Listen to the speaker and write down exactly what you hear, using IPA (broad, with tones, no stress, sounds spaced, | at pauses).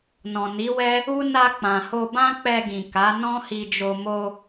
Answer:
n ɔ̃˨ n i˨˦ w ɛ˦ | u˦ n a˧ k͡p ã˨ h o˧ b ã˦ k͡p ɛ˧ ɡ ĩ˨ k a˨˦ n ɔ̃˦ h i˧ d͡ʒ o˧ m o˧